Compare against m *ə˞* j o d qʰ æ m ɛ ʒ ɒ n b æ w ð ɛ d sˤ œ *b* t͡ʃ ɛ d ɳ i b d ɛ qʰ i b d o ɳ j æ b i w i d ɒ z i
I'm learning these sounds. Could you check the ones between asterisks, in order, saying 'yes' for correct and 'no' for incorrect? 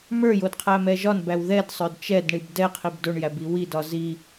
yes, no

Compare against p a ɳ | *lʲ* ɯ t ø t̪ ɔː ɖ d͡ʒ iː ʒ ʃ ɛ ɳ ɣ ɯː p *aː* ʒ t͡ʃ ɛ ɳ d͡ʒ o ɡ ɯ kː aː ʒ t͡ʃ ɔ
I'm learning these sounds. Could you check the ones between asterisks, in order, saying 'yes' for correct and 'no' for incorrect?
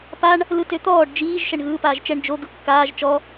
no, yes

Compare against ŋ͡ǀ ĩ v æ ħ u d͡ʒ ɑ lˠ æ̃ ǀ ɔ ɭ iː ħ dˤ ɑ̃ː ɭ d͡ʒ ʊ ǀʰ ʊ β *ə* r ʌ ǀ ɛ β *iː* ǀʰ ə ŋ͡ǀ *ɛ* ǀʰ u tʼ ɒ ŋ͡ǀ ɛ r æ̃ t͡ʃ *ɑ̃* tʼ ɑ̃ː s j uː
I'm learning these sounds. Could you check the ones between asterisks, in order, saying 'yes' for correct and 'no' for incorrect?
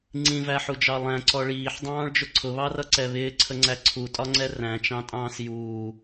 no, no, no, yes

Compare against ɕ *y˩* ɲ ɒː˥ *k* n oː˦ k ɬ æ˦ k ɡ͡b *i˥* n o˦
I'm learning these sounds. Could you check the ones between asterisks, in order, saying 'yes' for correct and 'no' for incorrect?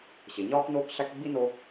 no, yes, yes

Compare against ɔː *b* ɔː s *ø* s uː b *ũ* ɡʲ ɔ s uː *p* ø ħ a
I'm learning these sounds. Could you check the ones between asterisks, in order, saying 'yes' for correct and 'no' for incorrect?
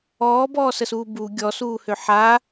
yes, no, no, no

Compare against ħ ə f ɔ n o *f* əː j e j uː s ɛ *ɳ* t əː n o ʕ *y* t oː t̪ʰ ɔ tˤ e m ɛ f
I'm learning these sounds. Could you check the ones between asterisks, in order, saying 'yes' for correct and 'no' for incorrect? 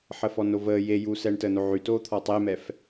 no, yes, yes

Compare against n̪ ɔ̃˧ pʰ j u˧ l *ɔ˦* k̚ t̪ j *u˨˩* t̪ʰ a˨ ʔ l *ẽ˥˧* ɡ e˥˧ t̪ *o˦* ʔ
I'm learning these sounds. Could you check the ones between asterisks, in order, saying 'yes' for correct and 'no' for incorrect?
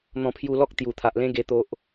yes, yes, no, yes

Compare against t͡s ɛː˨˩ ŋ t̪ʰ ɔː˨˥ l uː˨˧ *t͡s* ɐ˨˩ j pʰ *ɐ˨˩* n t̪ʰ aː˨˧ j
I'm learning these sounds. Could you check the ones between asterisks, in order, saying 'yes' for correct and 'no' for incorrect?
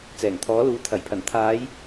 no, yes

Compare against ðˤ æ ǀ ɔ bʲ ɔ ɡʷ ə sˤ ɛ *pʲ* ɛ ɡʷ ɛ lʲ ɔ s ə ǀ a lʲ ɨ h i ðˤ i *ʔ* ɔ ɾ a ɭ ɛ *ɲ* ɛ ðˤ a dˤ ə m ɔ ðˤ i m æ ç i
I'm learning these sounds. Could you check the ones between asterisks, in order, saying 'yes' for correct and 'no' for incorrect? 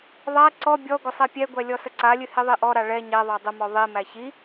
yes, yes, yes

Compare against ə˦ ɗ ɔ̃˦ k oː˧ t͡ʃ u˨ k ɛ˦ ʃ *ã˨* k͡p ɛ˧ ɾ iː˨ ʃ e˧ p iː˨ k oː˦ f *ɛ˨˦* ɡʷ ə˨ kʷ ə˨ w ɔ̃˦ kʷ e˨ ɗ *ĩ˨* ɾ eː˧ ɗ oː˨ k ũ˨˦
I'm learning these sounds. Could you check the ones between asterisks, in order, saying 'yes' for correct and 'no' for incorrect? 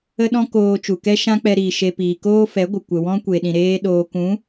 no, yes, yes

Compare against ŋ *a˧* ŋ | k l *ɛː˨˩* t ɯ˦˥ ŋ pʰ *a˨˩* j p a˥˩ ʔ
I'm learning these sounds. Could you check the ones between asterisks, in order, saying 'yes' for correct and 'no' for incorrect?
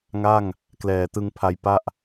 no, yes, no

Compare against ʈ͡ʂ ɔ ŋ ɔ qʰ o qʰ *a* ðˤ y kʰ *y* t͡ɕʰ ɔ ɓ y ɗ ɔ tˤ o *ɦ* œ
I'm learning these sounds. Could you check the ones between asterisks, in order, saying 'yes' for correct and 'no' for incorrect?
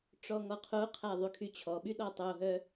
yes, yes, yes

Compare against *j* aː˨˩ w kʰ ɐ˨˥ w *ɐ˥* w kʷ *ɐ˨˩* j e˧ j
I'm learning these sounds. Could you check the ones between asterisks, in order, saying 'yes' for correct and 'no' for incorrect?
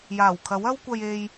yes, yes, no

